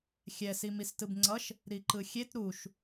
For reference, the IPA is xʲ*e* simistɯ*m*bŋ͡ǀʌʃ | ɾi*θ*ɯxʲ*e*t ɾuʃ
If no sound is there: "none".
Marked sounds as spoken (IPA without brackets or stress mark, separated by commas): ɛ, none, ǃ, e